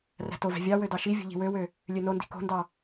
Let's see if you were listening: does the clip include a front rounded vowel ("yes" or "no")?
yes